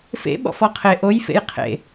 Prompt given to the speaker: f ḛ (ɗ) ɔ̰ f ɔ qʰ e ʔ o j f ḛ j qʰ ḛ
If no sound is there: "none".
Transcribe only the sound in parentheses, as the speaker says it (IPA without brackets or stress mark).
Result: ɓ